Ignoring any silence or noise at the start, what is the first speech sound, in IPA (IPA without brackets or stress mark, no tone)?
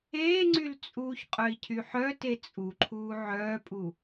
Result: eː